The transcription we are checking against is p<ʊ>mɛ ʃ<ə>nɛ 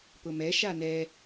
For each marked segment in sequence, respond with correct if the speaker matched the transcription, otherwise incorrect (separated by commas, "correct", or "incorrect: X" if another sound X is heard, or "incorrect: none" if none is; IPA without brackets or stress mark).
correct, incorrect: a